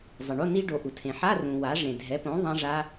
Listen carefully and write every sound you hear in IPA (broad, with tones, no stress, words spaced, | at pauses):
zˤɪ˩ɳo˧˥˧ni˦˥ ɖo˩˧ʔu˩ tʰẽ˩ħa˧˥˧ rũ˩ wa˩˥ʐẽ˩ dʱɛ˩˥põ˩˥ ðˤã˦˥ʐa˦˥